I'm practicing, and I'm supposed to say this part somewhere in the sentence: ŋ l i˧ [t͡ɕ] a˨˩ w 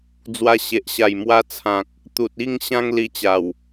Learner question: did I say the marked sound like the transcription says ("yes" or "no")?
yes